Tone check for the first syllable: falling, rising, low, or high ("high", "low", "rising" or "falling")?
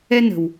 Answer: high